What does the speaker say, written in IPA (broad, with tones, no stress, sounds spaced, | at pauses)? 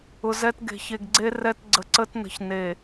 ʊ˨ z ɛ˦ t ɡ e̤˨ ç e˨ ɡ ɡ͡ǀ e˦ r ɛ˦ t ɡ͡ǀ ə˨ ǀ ə˦ t n ə̤˨ ç n e˨